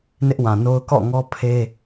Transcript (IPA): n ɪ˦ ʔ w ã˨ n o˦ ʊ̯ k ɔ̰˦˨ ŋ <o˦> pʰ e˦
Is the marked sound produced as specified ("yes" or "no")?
no